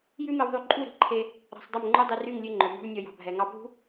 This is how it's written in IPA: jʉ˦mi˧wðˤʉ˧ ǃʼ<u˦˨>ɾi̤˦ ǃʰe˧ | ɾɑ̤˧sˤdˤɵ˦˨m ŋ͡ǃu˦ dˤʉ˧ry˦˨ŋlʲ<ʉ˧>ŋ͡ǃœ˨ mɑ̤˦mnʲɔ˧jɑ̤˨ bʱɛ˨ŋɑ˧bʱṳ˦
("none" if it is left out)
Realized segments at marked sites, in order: u˦˨, ʉ˧

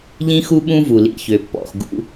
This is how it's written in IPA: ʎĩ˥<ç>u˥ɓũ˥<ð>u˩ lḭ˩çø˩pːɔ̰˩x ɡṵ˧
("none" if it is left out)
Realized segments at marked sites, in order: x, v

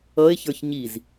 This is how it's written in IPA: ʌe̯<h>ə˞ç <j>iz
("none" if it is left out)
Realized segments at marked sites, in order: ç, ɲ

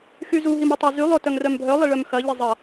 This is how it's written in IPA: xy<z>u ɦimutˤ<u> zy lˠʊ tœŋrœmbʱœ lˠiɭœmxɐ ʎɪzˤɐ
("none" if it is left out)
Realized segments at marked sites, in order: z, o

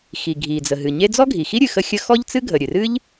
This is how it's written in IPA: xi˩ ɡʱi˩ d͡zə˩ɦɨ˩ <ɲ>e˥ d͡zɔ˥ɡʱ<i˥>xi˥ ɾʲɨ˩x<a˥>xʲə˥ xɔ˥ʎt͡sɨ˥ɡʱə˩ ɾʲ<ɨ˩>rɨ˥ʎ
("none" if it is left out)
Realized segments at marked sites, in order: ɲ, i˩, ə˥, ɨ˩

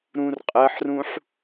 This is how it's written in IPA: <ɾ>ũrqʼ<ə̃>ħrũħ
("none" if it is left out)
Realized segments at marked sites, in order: ɾ, ə

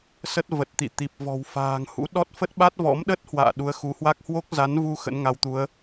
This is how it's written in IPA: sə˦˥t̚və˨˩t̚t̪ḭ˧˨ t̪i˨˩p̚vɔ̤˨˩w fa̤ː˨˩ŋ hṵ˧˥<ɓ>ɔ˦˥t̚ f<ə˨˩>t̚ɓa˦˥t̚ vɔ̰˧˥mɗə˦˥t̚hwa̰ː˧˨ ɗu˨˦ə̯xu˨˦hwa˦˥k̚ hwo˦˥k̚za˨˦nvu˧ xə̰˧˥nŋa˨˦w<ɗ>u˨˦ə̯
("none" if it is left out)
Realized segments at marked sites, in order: ɗ, ə˦˥, t̪

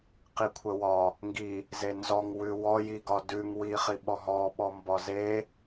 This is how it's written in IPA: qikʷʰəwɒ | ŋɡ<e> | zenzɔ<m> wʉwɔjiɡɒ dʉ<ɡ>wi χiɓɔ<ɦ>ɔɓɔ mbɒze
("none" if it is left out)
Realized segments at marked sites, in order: i, ŋ, ŋ, ɦ

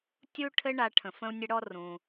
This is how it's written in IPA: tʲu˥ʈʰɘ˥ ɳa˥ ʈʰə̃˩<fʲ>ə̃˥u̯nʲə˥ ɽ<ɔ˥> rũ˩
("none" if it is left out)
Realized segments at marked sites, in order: f, ɔ˥

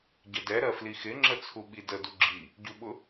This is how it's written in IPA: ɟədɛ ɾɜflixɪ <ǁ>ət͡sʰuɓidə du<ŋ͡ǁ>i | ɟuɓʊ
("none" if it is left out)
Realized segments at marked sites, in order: ŋ͡ǁ, ɡ͡ǁ

